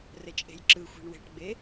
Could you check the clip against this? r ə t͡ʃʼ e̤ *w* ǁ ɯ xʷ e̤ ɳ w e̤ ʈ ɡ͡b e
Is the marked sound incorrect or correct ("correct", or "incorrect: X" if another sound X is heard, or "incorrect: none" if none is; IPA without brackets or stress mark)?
incorrect: j